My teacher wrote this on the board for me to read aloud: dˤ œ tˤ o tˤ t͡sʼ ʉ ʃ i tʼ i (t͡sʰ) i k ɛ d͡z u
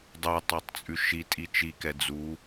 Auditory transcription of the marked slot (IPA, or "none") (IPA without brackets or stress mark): t͡ʃ